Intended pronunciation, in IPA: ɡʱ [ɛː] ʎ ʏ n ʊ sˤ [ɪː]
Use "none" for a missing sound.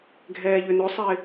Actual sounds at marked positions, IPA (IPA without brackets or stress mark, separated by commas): ɛː, ɪː